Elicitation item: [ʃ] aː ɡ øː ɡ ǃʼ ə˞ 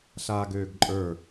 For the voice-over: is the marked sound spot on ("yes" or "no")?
no